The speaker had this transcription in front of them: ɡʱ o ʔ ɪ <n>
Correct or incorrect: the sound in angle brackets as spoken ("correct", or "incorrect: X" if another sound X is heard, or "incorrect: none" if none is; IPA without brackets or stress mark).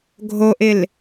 incorrect: l